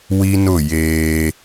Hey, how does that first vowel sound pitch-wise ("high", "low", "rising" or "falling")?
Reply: high